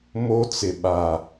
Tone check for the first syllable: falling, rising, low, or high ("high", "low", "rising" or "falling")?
high